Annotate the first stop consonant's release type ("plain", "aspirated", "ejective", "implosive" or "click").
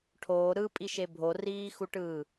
aspirated